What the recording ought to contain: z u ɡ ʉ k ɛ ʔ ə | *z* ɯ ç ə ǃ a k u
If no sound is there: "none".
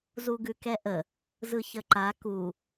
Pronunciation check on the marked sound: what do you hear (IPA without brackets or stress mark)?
z